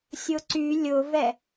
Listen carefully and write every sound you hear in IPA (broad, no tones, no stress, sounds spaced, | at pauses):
sʲ ʊ ǀ y lʲ ʊ v ɛ